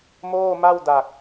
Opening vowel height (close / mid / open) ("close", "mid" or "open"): mid